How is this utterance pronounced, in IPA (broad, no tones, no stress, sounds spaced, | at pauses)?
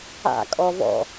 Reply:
a̰ kʼ ɔ v ɔ̰